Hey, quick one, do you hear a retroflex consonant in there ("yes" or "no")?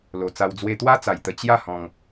no